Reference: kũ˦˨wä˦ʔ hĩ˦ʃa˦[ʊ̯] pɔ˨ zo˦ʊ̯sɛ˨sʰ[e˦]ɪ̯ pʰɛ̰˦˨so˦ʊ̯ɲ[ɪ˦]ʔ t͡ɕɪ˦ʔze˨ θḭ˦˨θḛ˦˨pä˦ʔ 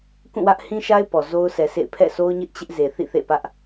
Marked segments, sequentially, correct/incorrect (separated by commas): incorrect, incorrect, correct